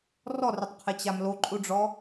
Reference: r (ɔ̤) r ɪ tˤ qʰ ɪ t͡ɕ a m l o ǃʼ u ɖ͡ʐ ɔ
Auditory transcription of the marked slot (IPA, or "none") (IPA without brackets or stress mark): ɔ